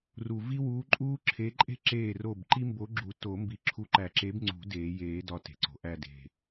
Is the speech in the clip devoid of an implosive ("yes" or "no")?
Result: yes